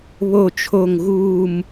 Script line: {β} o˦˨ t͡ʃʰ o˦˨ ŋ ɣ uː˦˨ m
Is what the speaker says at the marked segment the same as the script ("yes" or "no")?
yes